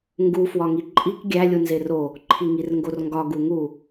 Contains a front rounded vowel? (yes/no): no